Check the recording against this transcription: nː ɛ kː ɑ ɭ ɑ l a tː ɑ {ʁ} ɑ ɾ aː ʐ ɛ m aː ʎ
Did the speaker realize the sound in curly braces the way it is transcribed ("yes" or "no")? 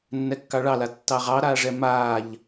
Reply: yes